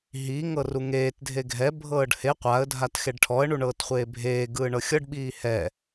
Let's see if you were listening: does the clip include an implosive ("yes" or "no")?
yes